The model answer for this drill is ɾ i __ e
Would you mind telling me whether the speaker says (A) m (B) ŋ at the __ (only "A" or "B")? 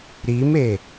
A